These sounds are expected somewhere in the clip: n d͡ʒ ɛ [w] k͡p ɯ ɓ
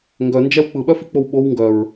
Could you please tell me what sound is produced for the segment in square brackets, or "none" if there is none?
w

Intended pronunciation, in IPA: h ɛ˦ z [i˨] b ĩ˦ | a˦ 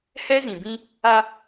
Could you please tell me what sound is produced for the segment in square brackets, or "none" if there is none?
ĩ˨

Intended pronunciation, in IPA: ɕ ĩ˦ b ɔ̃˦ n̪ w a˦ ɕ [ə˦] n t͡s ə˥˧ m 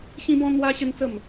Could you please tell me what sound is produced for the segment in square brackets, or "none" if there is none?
ə˦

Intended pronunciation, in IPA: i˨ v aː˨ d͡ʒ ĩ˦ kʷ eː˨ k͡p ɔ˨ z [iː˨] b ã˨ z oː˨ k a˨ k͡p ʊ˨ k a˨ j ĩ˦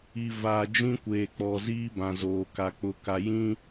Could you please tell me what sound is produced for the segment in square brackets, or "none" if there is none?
iː˦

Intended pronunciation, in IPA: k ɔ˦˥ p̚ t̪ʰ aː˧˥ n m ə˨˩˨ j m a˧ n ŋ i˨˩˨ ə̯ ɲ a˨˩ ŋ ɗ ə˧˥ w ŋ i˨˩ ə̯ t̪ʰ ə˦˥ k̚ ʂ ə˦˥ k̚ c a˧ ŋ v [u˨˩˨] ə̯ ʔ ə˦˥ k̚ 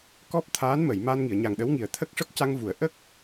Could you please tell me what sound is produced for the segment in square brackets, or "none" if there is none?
u˨˩˨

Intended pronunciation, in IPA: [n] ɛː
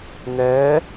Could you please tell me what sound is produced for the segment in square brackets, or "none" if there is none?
n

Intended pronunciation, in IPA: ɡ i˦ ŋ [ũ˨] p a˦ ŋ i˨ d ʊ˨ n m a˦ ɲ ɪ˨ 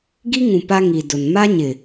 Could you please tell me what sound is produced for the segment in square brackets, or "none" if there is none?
ũ˨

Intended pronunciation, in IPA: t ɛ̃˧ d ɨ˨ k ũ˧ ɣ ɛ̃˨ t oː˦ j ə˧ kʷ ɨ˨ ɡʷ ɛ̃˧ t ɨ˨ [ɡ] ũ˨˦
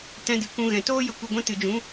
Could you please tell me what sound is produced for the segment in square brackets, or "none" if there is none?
d͡ʒ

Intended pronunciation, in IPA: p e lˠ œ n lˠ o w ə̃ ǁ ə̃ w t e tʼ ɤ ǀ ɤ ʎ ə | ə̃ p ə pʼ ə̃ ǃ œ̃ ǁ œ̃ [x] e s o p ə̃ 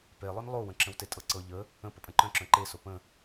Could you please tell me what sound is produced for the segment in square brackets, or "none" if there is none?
ǃ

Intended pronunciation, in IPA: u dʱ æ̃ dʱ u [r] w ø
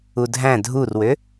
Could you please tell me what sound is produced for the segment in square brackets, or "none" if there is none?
r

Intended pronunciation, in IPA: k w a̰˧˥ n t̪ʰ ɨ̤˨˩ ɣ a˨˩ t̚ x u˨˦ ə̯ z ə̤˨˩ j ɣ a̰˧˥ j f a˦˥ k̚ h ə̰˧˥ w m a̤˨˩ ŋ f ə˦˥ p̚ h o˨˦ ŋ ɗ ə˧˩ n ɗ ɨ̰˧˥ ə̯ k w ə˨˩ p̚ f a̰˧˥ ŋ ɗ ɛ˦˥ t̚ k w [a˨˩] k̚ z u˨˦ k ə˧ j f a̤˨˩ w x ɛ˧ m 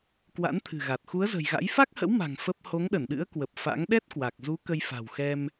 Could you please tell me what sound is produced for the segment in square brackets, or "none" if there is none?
a˨˩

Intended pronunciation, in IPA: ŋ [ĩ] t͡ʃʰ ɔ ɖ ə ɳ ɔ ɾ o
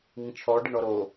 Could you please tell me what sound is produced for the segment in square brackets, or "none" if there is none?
ĩ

